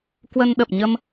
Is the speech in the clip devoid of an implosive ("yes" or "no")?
no